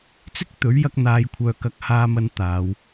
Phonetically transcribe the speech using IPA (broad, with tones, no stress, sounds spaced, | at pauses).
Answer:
t͡s ɪ˥ k̚ t̪ ɵ˨˥ ɥ j ɐ˧ k̚ n̪ aː˨˧ j kʷʰ œː˨ k ɐ˨˥ k̚ h aː˧ m ɐ˧ n t̪ aː˨˧ w